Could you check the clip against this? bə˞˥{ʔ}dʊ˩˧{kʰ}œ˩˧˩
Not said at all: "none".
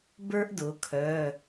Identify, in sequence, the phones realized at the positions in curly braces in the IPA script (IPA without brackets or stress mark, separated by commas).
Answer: ʔ, kʰ